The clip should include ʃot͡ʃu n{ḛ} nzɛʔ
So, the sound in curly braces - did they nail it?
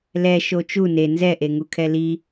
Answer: no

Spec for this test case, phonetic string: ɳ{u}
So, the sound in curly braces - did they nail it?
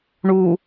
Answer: yes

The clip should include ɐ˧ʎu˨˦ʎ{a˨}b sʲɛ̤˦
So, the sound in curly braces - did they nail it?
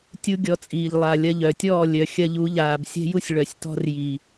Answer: no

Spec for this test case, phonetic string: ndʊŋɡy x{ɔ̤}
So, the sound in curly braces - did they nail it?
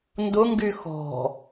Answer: yes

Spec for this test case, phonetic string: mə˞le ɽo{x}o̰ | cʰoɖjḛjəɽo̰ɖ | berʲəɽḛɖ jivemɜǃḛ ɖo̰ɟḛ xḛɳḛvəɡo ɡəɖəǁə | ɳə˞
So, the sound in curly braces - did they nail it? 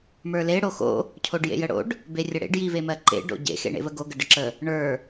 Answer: yes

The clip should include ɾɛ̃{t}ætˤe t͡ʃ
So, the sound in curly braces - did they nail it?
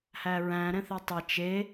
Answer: no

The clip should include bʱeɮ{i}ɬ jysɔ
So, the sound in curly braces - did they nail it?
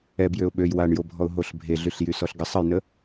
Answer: no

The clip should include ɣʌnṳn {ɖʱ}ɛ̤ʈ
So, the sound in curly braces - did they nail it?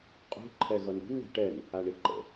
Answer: no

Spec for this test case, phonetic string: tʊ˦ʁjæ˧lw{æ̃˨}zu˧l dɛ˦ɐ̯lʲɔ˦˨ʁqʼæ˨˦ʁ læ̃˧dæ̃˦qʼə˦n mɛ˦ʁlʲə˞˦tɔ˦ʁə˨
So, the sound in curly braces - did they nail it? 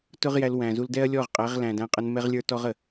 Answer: yes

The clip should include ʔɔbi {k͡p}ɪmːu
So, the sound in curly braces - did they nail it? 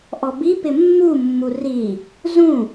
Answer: no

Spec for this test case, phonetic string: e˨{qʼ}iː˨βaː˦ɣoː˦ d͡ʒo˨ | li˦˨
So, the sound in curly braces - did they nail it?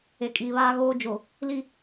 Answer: no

